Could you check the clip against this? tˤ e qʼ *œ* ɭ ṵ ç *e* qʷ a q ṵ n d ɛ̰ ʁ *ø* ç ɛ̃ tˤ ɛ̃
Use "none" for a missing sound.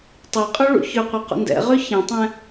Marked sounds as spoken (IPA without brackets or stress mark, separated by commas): œ, ø, ø